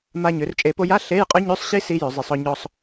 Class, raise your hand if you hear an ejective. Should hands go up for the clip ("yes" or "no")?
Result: yes